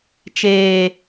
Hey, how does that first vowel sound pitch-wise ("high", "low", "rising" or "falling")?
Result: low